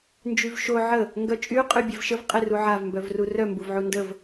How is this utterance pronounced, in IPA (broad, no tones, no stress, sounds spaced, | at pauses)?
n d͡ʒ y v ʃ o ʕ ə | ŋ ɡ œ t͡ʃʼ y qʼ y bʲ e v ʃ ə v qʼ e r u ʕ a v m b œ v r u r œ m b u v ʕ u n d ə v